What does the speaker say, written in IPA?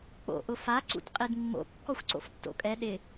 k͡po̰ʔʊ fa ǀṵtqʼidmːo̰ kːɔxʷǀo̰ftːo̰kʼɛ ɗɪ

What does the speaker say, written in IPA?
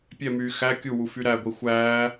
pʲɛmyː xæ kʲuwu fyɾæɡʷi xʷæː

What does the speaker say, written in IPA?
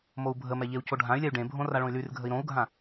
mou̯bʱəmɛ ʎeu̯coɖʱãy̯lʲɛy̯ ɖẽbʱõ raɭõy̯lyrɡʱəi̯ ɾõu̯ɡʱã

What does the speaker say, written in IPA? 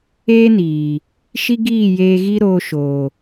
eː˦niː˨ | ʃi˦ɡiː˦˨jeː˧ɣi˦ ɾoː˧ ʃo˨

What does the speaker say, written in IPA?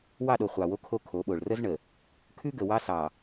wɑ˦˨ɗo˨ χʷɑ˨wo˦ kʰo˦kʰo˨˦ɓo˨ɭ rə˦zɳə˨ | kʰʉ˦ɡə˨ wɑ˦sɑ˨

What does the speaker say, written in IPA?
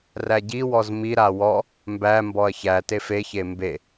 ræɟiwɔz miɾa wɔ | mbæ mbɔɐ̯çætef eçe mbe

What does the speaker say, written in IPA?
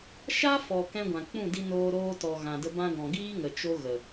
ʃa˦fɔ˨ kɛ̃˦ɡʷã˨ k͡pũ˦˨di˧noː˧ ɾoː˧tɔ˨ ɣã˨də˧ bã˧ɡɔ̃˨ ɡiː˦ŋə˨ t͡ʃo˦ɣə˨

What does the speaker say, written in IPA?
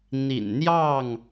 n̪ḭ˨˩nn̪jɑ˥˨ŋ

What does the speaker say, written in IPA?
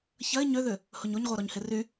çɐɪ̯ ɲøðʏ | hʊɲoɲʁʷœ ɾɔɲhɪry

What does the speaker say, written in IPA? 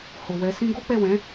ho˨ wɛ˧sĩ˦ ɡo˦k͡pɛ˦˨wɛ̃˨˦

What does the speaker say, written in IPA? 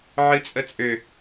ʕɨt͡sʼət͡sʼø

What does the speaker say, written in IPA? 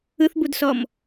ɯθbudsɔm

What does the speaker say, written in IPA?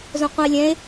zõqʷə̃e̯lʲɛ̃e̯

